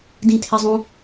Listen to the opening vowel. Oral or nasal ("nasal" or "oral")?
nasal